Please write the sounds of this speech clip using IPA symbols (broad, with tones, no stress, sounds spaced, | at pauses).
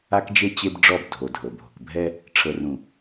a˦ k d͡ʒ e˦ t͡ɕ e˦ b ɖ͡ʐ ɔ˦˨ b dʱ o˨ dʱ ɤ˨ bʱ o̤˨ k bʱ ɛ˦ | ʈ͡ʂʰ ɤ˨ r ũ˨